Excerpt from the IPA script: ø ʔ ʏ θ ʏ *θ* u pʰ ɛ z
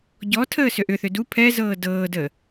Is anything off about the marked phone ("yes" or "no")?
yes